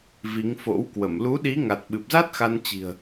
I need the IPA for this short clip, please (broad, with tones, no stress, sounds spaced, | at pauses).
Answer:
v i˨˦ ŋ f o̰˧˥ w k w ə˧˩ m l u˨˦ ɗ i˨˦ ŋ a˨˩ t̚ ɓ ɨ˨˩ p̚ z a˦˥ t̚ x a˧ n t͡ɕ i̤˨˩ ə̯